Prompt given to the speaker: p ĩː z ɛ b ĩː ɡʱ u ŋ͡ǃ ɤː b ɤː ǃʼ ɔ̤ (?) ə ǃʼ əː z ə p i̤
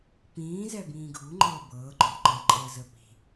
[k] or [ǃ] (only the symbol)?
ǃ